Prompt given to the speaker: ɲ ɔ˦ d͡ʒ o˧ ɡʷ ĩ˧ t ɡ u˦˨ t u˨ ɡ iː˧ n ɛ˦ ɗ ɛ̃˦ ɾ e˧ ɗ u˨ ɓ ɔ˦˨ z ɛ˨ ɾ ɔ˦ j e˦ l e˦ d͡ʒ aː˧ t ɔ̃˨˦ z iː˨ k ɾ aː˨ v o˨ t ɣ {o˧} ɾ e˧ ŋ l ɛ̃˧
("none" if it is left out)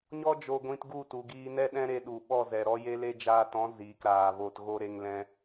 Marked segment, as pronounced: o˧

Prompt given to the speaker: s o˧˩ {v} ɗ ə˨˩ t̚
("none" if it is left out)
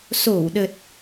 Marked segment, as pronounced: w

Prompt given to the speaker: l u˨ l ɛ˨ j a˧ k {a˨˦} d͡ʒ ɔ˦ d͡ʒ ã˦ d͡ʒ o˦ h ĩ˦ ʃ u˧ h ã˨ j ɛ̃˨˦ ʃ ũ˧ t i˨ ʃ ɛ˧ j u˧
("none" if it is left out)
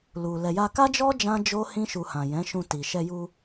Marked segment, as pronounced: a˦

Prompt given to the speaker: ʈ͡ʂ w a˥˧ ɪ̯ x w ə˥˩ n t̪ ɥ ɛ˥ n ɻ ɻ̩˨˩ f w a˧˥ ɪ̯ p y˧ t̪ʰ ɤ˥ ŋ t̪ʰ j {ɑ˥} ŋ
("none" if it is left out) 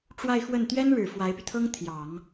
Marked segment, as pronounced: ɑ˨˩˦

